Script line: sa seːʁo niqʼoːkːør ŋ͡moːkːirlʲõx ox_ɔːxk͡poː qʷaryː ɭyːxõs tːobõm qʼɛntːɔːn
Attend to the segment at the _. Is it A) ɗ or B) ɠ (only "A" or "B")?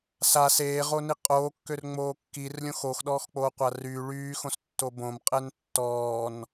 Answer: A